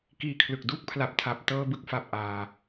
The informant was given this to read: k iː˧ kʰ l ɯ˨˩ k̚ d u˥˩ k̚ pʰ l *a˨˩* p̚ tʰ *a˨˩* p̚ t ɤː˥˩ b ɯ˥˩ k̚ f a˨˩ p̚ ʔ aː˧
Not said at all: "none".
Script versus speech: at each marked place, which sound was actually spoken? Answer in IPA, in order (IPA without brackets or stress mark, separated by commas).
a˨˩, a˨˩